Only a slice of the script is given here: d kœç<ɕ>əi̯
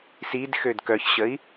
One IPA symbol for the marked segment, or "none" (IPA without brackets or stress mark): ɕ